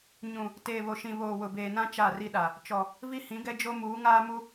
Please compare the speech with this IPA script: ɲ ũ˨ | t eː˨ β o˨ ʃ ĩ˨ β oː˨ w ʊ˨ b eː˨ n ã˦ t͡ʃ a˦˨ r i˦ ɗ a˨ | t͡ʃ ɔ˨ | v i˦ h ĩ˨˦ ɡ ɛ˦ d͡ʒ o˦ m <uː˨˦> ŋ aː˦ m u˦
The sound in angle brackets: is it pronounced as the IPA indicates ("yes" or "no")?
yes